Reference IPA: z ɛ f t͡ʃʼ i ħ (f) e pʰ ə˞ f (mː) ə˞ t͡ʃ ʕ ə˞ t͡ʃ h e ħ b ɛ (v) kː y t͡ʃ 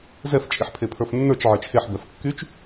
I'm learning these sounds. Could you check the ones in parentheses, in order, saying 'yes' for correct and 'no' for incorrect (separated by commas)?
no, no, no